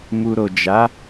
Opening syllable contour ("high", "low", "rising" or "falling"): low